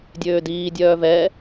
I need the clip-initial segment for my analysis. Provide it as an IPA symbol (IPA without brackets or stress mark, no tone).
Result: dʲ